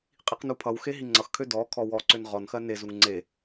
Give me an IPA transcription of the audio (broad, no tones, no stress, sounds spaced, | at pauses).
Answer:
qʼ i q n u pʰ ʌ w x e ɦ i ŋ͡ǀ ʌ x kʰ ø d ɔ kʰ ɔ w ɔ ǀ ø n ʁ ɔ n x ɜ n e z u ŋ ŋ͡ǀ e